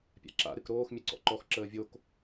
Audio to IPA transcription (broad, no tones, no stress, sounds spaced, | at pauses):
pʲ a̰ ǁ a̰ ɾ ɨ k ɾ oː x mʲ ɨ ǀ ɔ̰ ǃ ɔ x ǁ əː vʲ o k